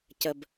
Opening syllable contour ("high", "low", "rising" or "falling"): low